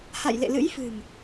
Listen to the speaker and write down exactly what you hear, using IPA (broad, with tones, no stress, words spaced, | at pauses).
ha̰˧˨jlḛ˧˨lɨ̰˧˥jfɨ̤˨˩m